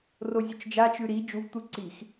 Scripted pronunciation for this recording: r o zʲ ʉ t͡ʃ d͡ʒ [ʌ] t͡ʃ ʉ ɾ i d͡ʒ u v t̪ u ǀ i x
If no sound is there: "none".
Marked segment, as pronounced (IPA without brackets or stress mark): a